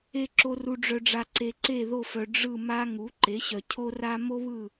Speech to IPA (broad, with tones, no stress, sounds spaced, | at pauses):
e˨ ǁ o˨ r u˨ ɖ͡ʐ œ˨ ɖ͡ʐ a˨ ǀ e˨ ǀ e˦˨ ð o˦˨ f œ˨ ɖ͡ʐ ɯ˦˨ m a˥ ŋ u˩˥ ǃ e˩˥ ɕ œ˨ cʰ o˥ r a˥ m o˥ β ɯ˦˨